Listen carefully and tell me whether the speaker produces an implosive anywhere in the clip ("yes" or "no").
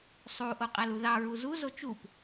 no